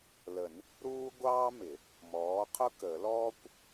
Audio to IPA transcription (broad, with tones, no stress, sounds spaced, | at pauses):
l ə˨˩˦ n | ɾ uː˥ ɡʷ ɑː˥ m ɪ˨˩˦ | m ɔː˨˥ qʰ ʊ˥ k ə˨˩˦ l ɔː˥ kʷ